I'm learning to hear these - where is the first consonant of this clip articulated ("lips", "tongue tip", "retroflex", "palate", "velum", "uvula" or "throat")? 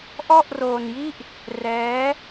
throat